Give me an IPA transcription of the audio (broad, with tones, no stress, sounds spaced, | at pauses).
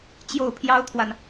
t͡ɕ j o˥˩ ʊ̯ pʰ j ɑ˥ ʊ̯ t̪ʰ w a˨ n